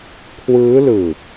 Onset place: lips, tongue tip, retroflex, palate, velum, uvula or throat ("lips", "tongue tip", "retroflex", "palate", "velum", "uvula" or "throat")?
velum